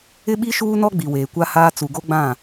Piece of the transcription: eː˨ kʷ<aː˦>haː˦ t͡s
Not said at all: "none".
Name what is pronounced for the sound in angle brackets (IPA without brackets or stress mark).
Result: a˦